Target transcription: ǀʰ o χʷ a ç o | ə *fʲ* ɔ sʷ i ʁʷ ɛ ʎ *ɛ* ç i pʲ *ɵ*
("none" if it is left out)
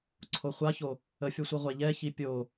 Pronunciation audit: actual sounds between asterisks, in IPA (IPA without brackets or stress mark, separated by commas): fʲ, ɛ, o